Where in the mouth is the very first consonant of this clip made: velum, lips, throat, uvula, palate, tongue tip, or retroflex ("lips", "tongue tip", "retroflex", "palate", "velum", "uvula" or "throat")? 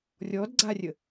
tongue tip